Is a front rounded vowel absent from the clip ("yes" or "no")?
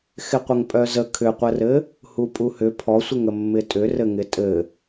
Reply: no